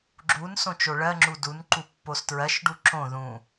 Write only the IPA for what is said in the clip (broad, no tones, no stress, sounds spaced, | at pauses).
ɡ͡ǁ u n s õ t͡ʃ o ɭ ɜ ŋ͡ǁ u d u n ǃ u pː o s t ɹ ɜ ʃ ɖ u ǁ õ ð ũ